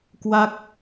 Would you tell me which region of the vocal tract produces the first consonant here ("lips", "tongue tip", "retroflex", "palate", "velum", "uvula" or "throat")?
velum